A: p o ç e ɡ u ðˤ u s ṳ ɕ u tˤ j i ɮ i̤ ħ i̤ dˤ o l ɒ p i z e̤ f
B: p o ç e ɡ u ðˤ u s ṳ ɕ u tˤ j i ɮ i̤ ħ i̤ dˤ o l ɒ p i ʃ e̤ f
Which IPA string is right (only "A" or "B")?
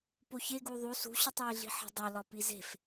A